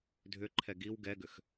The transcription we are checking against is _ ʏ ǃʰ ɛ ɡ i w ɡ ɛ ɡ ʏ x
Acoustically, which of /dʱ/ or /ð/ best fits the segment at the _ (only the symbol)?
dʱ